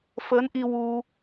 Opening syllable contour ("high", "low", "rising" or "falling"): rising